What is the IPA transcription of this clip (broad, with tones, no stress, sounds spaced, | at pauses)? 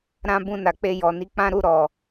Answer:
ɾ ã˦ b ũ˦˨ n a˨ k͡p e˧ j ɔ˨ n i˧ k͡p ã˦ ɾ u˦˨ ɾ ɔ˨